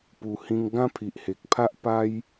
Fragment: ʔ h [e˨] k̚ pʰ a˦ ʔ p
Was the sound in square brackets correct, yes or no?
yes